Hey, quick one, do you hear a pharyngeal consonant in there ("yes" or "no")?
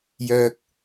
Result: no